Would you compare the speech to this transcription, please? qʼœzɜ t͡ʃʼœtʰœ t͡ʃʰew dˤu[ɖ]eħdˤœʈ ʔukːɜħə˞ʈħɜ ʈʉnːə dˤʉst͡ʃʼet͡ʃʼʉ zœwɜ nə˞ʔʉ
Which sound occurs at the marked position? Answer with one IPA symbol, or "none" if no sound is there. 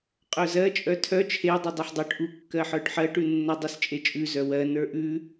dˤ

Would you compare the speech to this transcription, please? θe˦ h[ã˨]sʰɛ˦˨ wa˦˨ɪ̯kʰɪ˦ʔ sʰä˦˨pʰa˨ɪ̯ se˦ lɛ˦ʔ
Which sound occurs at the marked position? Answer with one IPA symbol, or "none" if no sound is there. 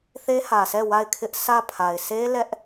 ä˨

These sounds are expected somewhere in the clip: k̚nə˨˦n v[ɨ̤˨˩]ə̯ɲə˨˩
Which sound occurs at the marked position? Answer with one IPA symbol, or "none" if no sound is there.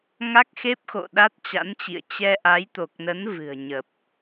ɨ̤˨˩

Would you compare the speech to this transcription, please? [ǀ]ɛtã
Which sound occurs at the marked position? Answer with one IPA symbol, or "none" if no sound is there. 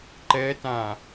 ǃ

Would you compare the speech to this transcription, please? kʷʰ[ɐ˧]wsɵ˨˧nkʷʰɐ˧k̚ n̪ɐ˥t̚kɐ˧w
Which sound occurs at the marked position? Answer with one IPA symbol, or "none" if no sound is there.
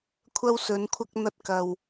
ɐ˧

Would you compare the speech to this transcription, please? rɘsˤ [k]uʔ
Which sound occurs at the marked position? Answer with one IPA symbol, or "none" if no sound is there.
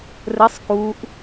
k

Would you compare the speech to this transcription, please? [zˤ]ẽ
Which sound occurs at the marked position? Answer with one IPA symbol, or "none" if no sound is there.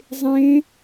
zˤ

